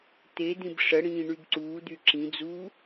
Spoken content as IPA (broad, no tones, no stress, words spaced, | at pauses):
t̪ed̪ĩb ʂəɽĩː ɳybǀuːd̪y ǁĩd͡zuː